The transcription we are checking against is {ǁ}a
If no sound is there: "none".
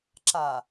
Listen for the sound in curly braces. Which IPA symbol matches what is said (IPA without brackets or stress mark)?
ǁ